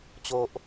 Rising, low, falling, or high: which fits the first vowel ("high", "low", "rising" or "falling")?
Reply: high